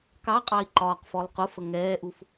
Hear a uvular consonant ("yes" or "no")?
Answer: yes